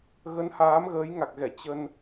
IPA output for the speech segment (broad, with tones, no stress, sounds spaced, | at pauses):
ɣ ə˨˦ n h aː˨˦ m ɣ əː˨˦ j ŋ a˨˩ k̚ ɣ ɛ˧˩ t͡ɕ ə˧ n